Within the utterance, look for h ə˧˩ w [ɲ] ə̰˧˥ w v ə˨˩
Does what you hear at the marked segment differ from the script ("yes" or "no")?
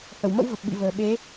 yes